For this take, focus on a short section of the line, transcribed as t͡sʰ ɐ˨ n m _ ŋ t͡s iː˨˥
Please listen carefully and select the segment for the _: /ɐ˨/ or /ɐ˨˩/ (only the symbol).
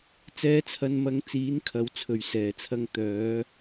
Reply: ɐ˨